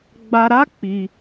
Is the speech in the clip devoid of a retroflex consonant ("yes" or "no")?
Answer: yes